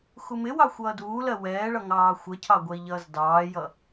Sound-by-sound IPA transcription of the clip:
xumɪwɑ xʷʌːduːlɜ wɛːɭʌ ŋɑːxʷəcʰɑ ɡʷɛi̯ʎʌːzdɑːjʌ

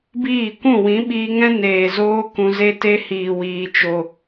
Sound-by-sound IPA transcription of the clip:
biː˦˨kʷũ˦˨ wĩ˨˦ɓiː˧ŋɛ̃˦ neː˨zoː˧ kũ˧ze˦te˦ hiː˨ wiː˨t͡ʃo˨

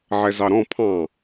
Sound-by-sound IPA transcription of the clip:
ʕɛzɑɾɔ̃ pʰɑ̃

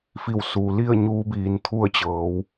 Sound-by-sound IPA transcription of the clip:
fi˧˩wsu˩li˥˨ə̯ ɲuː˧˥biː˩˧nt̪ʰu˥˨ə̯t͡ɕɤː˩˧w

